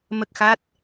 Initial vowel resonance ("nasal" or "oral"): oral